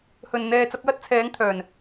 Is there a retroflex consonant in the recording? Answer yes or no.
no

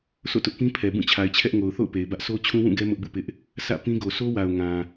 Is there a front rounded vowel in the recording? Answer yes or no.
no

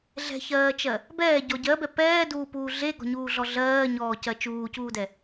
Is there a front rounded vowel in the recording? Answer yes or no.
no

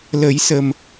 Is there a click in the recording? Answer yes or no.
no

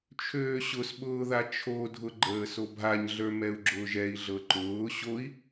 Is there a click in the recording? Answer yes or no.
yes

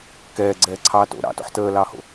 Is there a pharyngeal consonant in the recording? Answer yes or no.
yes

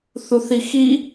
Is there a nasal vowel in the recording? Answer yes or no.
no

